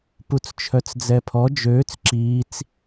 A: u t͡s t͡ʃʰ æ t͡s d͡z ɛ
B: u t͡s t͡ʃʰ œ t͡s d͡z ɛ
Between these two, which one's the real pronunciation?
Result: B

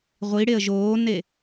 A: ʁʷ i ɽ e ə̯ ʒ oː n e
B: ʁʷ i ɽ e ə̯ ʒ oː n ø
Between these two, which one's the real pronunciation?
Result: A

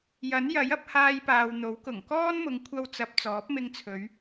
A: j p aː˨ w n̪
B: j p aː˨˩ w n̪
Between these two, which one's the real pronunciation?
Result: A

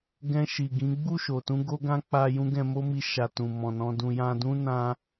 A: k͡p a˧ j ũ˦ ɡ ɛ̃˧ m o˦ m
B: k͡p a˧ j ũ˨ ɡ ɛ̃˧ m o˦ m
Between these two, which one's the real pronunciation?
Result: A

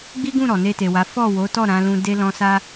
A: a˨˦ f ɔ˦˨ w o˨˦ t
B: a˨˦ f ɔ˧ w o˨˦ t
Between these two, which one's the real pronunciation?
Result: A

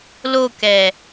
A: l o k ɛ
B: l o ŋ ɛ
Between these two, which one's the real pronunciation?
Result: A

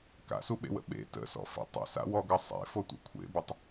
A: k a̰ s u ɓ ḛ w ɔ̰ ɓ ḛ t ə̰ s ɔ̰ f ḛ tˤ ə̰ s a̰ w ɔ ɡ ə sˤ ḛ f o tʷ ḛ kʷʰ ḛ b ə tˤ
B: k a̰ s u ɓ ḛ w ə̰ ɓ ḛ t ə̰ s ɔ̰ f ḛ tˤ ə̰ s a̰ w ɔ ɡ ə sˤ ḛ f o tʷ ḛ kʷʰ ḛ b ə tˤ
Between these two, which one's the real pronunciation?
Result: B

